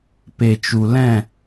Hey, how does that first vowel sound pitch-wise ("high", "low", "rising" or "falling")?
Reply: low